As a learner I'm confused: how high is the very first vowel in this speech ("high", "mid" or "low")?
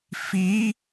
high